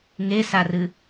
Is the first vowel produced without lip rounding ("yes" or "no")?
yes